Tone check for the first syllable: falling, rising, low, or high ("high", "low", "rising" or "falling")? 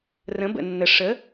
rising